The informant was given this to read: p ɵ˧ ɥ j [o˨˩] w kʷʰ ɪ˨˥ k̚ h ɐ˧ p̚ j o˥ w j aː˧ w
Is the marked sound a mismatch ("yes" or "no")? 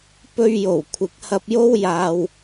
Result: no